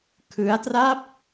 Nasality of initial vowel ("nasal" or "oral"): oral